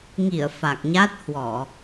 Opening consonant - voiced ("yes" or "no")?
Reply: yes